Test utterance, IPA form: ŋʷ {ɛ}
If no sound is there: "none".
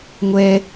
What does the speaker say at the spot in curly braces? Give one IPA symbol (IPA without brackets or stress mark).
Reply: ɛ